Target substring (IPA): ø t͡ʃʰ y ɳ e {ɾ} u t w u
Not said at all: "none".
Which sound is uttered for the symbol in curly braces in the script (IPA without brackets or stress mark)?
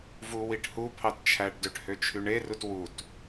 r